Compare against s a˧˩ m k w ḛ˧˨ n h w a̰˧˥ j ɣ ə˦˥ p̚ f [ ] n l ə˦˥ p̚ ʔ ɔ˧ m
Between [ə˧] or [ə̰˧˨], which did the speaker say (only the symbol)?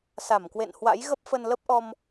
ə˧